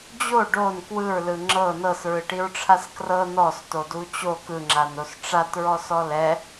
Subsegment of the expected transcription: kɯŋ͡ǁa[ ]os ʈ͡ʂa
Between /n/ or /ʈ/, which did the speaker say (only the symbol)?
n